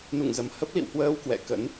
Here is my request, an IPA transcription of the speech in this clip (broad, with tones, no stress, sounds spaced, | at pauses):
n ṵ˧˨ ŋ z ə˨˩ m h ə˦˥ p̚ l ḭ˧˨ w h w əː˧ w k w ɛ̰˧˨ k ə̰˧˥ n